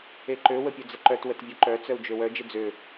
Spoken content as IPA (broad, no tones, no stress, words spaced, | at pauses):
eǃø wəpʲød͡zəǃœt wətvʲœǃœ t͡sœu̯d͡ʒøwœ d͡ʒɪd͡zø